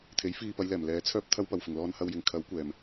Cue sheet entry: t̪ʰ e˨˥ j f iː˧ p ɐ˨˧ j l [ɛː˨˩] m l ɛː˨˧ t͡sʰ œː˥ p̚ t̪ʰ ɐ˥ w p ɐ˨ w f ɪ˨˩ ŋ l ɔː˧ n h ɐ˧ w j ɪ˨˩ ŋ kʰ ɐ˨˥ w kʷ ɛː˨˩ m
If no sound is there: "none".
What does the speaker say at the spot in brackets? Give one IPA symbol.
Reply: ɛː˨˩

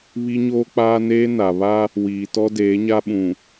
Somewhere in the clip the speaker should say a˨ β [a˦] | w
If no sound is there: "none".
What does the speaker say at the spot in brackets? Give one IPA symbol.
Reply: a˦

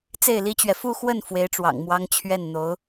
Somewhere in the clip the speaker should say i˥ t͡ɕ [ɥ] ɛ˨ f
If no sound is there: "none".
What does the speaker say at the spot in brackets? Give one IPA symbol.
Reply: ɥ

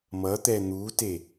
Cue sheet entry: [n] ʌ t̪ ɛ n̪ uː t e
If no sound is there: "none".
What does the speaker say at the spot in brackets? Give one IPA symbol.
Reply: m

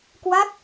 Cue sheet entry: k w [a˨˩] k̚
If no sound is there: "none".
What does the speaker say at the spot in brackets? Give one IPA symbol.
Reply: a˦˥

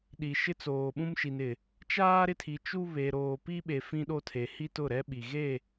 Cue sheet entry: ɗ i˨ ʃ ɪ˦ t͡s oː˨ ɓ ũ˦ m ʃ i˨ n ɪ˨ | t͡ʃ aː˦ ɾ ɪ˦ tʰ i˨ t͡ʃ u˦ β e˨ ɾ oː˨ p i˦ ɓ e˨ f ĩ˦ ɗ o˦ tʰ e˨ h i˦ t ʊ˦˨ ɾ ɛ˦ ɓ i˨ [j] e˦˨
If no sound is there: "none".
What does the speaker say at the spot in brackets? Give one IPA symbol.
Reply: ɣ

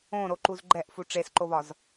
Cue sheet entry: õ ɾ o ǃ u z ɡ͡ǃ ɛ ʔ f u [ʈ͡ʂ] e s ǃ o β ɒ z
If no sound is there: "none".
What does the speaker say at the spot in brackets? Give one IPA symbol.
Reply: ʈ͡ʂ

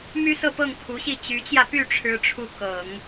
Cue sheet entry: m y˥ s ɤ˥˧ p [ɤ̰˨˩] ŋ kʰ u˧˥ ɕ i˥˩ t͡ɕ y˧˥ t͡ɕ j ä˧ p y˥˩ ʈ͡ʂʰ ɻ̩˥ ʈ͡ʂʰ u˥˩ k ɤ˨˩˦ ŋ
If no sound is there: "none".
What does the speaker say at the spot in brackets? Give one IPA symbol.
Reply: ɤ˥˩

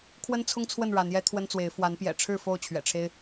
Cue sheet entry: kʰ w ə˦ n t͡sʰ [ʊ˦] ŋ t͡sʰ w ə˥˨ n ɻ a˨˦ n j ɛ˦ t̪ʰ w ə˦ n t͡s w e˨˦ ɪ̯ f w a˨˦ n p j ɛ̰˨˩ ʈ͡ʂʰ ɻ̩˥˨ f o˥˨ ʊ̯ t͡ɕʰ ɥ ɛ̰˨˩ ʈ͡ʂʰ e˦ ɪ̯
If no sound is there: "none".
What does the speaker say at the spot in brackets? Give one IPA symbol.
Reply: ʊ˦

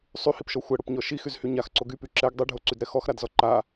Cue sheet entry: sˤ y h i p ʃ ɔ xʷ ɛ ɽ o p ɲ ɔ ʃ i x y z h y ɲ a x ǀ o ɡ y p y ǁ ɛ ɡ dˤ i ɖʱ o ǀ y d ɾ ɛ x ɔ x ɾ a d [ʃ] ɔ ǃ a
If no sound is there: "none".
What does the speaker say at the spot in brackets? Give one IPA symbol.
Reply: z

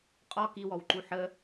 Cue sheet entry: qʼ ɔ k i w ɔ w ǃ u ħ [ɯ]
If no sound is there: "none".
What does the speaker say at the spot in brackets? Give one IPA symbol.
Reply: ə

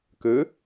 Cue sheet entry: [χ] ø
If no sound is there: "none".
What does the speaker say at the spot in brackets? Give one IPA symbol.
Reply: k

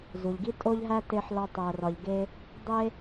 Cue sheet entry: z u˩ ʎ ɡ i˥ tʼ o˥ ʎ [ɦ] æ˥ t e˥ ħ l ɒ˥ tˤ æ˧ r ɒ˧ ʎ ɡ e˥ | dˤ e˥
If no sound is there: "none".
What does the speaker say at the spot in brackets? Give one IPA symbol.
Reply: ɦ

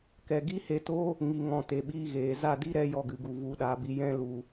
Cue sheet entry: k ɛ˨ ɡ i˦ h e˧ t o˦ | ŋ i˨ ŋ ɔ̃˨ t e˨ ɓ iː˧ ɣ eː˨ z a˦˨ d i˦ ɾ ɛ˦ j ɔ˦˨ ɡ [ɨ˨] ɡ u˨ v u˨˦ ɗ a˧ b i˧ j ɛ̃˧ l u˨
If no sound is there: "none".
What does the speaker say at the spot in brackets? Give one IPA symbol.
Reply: ɨ˨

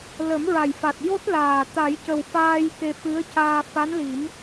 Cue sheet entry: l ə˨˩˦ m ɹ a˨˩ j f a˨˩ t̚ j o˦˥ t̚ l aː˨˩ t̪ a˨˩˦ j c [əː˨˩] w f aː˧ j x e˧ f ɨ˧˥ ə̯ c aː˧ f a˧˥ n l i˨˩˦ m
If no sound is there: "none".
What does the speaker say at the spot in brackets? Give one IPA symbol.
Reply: ə˨˩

